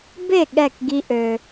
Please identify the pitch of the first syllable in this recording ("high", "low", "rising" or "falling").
falling